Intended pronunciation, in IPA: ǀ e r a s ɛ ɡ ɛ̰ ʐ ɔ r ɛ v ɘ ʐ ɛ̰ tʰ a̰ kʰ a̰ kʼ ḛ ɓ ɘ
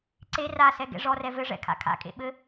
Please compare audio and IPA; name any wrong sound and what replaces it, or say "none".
tʰ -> kʰ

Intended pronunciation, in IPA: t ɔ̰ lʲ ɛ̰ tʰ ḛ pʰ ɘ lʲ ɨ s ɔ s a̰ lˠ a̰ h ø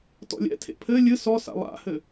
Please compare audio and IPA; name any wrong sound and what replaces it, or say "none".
ø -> ɘ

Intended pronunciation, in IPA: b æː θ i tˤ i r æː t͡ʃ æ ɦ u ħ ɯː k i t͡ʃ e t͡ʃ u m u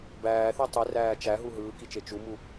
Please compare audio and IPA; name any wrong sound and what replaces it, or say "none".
ħ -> ɦ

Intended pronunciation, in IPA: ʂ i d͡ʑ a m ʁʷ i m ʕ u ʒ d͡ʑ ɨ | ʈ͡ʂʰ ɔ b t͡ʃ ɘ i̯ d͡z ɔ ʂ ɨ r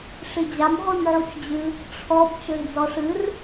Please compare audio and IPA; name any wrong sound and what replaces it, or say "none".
ʒ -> t͡ʃ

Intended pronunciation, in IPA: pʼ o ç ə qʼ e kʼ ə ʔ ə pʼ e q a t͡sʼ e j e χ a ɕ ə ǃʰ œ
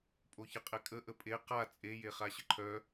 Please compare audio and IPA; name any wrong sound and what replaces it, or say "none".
none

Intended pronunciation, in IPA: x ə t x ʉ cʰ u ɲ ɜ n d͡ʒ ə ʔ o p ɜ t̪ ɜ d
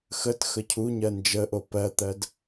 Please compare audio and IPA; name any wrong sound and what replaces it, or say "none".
ʉ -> ə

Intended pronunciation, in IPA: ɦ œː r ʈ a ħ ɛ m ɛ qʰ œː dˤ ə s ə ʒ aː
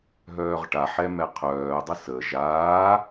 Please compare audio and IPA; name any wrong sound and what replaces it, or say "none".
r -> ʁ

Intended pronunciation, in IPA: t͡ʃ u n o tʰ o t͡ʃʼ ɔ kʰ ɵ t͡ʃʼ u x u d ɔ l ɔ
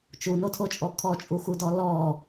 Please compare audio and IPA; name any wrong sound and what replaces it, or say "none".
ɵ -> ɔ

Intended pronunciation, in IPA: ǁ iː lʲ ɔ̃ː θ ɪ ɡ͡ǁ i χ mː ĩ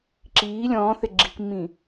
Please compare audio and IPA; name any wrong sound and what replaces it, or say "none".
χ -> k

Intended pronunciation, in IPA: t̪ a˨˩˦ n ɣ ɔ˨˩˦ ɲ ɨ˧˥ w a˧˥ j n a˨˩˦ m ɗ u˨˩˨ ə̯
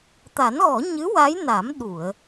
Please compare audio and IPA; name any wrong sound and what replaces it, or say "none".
none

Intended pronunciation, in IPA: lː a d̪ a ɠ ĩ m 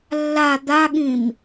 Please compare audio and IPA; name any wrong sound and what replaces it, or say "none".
none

